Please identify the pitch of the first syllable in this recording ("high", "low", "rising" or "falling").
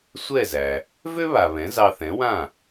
falling